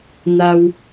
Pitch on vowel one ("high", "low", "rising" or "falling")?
high